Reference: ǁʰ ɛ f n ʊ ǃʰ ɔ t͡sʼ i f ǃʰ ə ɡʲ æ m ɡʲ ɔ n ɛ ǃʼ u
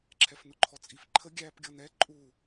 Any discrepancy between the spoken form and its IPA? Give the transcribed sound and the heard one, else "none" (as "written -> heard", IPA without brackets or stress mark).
m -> p